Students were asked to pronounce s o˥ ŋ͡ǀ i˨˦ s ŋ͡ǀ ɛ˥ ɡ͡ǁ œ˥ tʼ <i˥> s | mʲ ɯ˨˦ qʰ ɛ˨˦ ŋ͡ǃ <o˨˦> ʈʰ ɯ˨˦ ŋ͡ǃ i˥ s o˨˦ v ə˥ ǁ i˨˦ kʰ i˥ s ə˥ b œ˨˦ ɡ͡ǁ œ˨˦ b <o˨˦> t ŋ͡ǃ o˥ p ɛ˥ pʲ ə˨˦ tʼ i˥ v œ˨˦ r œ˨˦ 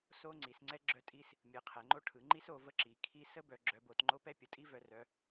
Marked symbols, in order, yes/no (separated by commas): yes, no, yes